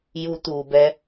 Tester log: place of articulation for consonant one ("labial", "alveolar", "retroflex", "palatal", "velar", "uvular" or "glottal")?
palatal